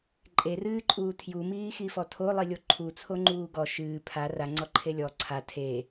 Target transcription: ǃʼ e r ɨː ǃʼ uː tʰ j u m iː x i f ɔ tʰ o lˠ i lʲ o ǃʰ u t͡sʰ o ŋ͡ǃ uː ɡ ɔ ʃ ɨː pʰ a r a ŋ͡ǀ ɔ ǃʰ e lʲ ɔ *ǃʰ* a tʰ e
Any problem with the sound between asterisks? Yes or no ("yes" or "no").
yes